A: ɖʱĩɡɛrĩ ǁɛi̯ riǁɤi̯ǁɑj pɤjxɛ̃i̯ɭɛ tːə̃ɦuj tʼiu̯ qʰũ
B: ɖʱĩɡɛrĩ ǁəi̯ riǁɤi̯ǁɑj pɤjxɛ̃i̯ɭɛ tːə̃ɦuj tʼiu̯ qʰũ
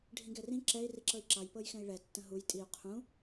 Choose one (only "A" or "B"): A